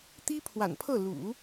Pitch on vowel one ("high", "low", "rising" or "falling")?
high